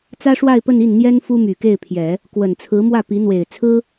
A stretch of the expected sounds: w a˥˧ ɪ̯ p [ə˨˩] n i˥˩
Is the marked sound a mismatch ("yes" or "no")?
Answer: yes